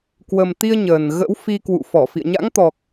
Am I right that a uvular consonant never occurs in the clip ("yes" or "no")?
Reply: yes